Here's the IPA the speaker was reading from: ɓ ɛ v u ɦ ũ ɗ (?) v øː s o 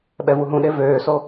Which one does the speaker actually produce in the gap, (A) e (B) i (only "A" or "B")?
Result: A